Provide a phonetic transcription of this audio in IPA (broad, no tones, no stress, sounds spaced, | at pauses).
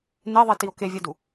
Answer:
n e ðˤ i t i o̯ k e vʲ ɛ d u